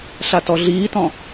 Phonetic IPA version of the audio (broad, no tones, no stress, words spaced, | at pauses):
ɬatɔɮiːtɔ̃